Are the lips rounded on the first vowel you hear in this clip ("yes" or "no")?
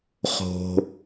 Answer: yes